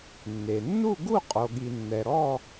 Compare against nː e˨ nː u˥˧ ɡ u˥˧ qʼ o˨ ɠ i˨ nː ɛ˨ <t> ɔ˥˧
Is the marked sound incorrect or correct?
incorrect